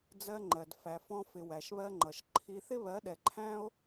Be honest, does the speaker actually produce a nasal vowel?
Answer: yes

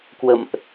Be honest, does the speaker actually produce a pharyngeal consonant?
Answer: no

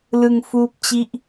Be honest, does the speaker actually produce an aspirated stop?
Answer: no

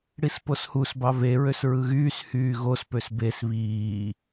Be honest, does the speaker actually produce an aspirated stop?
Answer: no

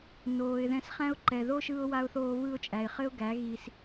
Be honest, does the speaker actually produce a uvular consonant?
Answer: yes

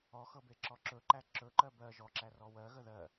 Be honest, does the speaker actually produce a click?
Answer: yes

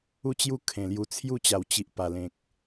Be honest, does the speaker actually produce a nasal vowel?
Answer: yes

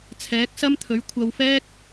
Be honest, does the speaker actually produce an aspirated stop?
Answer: yes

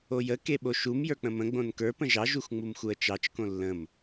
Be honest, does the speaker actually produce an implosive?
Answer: yes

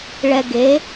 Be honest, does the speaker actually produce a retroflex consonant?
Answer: yes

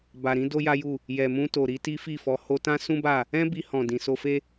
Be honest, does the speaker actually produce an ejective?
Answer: no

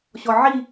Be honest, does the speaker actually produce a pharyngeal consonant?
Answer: yes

